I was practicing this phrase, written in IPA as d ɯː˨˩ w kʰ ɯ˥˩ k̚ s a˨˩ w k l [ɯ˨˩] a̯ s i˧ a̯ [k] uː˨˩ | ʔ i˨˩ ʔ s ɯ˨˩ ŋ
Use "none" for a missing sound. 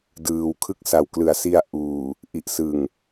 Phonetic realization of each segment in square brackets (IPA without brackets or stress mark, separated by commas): ɯ˩˦, ʔ